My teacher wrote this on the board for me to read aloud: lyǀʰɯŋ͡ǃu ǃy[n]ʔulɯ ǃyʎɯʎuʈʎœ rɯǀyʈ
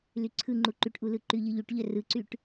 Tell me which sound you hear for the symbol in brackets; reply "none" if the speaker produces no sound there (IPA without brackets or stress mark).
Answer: ʈ